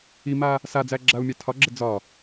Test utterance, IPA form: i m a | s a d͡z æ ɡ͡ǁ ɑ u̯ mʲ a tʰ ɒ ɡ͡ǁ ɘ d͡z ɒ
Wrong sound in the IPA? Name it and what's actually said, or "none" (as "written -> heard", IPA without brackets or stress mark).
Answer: ɑ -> a